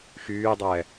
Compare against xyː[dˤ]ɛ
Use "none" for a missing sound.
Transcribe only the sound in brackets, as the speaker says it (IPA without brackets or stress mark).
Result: dˤ